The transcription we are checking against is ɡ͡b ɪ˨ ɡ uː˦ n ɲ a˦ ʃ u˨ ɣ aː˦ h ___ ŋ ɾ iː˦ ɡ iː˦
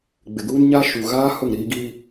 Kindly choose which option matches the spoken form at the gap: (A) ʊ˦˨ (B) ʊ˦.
A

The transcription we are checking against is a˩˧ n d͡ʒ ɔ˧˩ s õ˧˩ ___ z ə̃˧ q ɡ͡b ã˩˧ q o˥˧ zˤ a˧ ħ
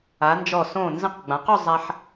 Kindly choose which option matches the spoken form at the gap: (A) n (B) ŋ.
A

